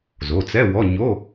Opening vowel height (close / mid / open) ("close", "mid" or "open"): mid